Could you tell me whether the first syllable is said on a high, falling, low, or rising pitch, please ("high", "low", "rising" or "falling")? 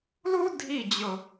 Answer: high